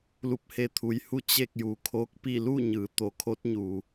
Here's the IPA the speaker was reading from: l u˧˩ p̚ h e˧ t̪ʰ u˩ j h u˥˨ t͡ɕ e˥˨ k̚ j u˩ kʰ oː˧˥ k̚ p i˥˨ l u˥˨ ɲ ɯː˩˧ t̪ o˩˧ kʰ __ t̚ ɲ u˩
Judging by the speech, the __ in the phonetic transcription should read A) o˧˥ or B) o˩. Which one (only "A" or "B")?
A